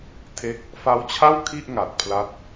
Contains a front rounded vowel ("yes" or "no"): no